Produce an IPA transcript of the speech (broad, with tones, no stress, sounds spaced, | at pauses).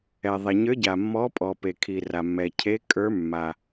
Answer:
ɛ˩ ðˤ ɛ˩ ɲ ə˞˨˦ ɟ a˩ mː ɔ˨˦ pʼ ɔ˩ p e˩ kʰ i˩ r a˩ mː ɛ˩ cʰ e˨˦ kʼ ə˞˨˦ mː a˩